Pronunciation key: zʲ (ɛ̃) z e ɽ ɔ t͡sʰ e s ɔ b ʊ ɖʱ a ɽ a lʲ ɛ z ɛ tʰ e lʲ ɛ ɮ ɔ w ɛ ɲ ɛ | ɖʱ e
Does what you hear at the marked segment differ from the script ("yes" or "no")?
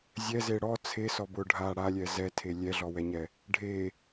yes